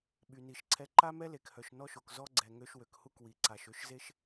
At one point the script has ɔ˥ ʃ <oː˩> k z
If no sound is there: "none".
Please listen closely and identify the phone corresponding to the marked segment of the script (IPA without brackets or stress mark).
o˩